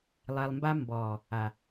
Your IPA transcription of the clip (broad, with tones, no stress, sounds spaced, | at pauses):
lˠ ɛ˨ lˠ m b a˧ m b ɔː˨ | a˨